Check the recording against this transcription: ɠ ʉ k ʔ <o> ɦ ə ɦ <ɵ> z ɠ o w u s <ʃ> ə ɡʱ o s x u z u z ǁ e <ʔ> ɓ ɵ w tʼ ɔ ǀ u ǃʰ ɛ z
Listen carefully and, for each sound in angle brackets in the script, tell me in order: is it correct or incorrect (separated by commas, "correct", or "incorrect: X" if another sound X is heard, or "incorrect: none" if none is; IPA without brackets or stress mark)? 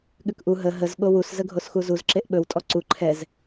incorrect: u, incorrect: ə, incorrect: z, correct